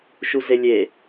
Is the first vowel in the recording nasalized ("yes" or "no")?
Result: no